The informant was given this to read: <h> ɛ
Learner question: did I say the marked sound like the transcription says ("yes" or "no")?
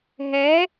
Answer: no